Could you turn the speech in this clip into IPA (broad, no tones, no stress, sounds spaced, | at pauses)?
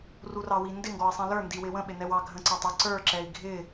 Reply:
r u r ɑ w i n d ɪ ŋ ɡ ɔ i̯ sˤ ɛ̃ l ə˞ n d i w ɪ w ə̃ ɓ ɪ n ɛ w ɑ ɡʱ ə̃ ǀ ɑ tˤ ʊ ǀ ə˞ ǁ ɛ i̯ ɡʱ ɪ